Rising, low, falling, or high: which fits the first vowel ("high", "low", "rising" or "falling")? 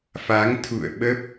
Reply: rising